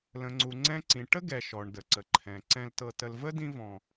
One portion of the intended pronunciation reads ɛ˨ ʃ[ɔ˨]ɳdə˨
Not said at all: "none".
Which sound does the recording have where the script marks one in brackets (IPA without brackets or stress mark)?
ɔ˨